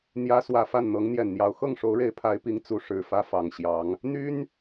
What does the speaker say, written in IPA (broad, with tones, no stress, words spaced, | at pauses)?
n̪jä˥ swä˨˩fa˥˩nn̪ɤ˧˥ŋ n̪jɛ˨˩nn̪jɑ˧˥ʊ̯ xɤ˥˩ŋʂo˧˥ʊ̯ɻe˧˥ɪ̯ pʰa˧˥ɪ̯pi˧˥ŋ t͡su˧˥ʂɻ̩˨˩fä˥ fɑ˨˩ŋɕjɑ˧˥ŋ | n̪y˥n